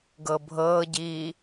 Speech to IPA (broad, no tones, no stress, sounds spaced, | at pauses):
ɡ ɤ bʱ ɤː ɟ iː